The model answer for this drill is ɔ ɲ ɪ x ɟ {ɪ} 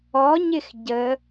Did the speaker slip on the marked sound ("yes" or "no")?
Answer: yes